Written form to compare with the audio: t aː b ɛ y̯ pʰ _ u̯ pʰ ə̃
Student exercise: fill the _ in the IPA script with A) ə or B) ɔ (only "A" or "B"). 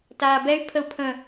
A